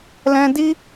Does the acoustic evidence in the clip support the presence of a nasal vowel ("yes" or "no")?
yes